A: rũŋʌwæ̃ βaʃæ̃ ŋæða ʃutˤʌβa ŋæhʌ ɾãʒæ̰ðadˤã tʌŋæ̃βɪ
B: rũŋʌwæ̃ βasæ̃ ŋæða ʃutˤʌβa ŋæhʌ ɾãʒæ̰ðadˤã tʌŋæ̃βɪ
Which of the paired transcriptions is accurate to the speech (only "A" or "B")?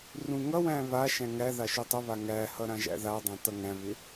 A